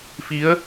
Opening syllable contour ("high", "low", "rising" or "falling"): rising